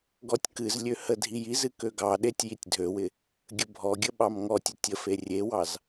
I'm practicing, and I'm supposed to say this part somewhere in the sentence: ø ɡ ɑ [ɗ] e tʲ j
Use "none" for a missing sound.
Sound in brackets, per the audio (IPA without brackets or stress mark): ɗ